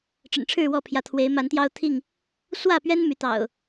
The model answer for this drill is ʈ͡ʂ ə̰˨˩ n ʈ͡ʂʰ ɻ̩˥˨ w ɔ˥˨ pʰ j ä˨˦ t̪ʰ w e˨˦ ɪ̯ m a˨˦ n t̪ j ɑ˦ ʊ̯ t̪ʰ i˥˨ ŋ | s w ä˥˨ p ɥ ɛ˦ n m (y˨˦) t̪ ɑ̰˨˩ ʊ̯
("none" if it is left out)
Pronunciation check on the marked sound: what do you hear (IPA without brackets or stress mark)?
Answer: y˨˦